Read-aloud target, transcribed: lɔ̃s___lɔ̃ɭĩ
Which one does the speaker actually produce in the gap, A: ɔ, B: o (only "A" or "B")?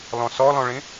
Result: A